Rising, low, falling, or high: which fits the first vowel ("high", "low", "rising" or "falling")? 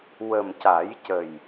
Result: low